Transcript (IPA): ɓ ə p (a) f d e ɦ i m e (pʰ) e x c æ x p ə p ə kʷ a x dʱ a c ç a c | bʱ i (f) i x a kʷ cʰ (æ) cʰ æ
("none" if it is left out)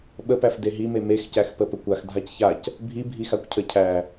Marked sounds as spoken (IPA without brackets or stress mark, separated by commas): æ, m, bʱ, ə